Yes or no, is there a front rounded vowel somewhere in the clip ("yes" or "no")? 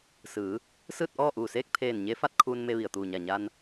no